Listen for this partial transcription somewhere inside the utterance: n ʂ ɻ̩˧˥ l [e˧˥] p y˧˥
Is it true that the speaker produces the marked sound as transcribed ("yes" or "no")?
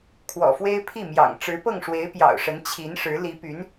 no